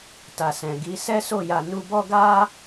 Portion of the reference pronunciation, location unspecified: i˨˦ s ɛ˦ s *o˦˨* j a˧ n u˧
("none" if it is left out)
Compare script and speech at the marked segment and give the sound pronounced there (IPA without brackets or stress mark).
o˦˨